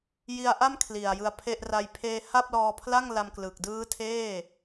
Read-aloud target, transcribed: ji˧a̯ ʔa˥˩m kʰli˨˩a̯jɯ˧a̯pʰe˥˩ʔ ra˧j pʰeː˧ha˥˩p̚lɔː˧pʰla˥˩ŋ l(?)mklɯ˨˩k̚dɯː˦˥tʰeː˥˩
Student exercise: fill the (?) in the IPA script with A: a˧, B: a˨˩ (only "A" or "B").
A